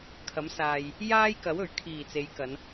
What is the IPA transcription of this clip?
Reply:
kʰ ɐ˨˥ m s aː˨ j | j aː˥ j k ɐ˨˥ w ɵ˨˩ ɥ kʰ iː˨˩ t͡s e˨˧ j k ɐ˨˧ n

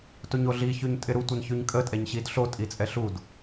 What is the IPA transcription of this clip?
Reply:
t o ɲ o ɮ i ç ʉ ɲ tʼ ɪ ɾ u tʷ ɪ n ç ʉ ɲ kʼ ə tʼ ɛ ɲ ɕ i d ɬ o tʼ i t͡sʼ ɛ ɬ u d

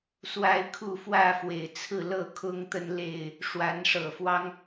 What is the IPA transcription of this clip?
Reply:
s w a˦ ɪ̯ kʰ u˥˨ f w ä˥˨ f w e˨˩ ɪ̯ t͡sʰ ɹ̩˥˨ l ɤ˥˨ kʰ ʊ˦ ŋ t̪ ə˦ n l e˥˨ ɪ̯ | ʂ w a˨˦ n ʂ ɤ˨˩ f w ɑ˦ ŋ

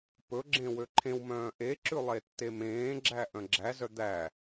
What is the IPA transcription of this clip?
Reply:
p ɵ ɡ͡ǁ ẽ w ø ǃʰ ẽ w m œ̃ː ʔ e ǁ ʉ lˠ e tː e m ẽː ɡ͡ǁ æ ʔ œ̃ ɡ͡ǁ æ z œ d̪ æ

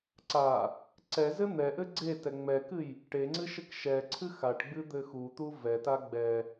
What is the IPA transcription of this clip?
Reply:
ǀ a | ǀ ɛ z ɘ n̪ ɛ ʔ ɘ ɡ͡ǀ e t ɛ ŋ͡m ɛ k ɨ j | ʈ e ŋ͡ǀ ɨ ʃ ɘ k ʃ ɛ ǀʰ ɨ x a ʈ ɡ͡b ɨ d̪ ɘ x u t̪ u v ɛ t a ɡ͡b ɛ

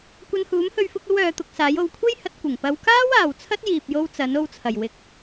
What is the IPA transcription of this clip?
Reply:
kʷ ɐ˧ n h uː˨˥ m h ɵ˧ ɥ f ʊ˧ k̚ ɐ˥ w œː˨˧ t̪ ʊ˧ k̚ s aː˨˥ j o˨˧ w kʷʰ e˥ j h ɐ˨˥ t̚ kʷ ɪ˨˩ ŋ p ɐ˨˧ w k aː˥ w aː˨ w t͡sʰ ɐ˥ t̚ j iː˨ p̚ j o˧ w t͡s ɐ˨˥ n o˧ w t͡sʰ ɐ˨˩ j w ɪ˨˥ k̚

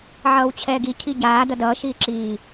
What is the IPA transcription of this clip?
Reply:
ʕ ʌː w t͡ɕʰ ɛː ɡ i cʰ i ɟ aː d ʌ d ʌː ʃ iː ǁ iː

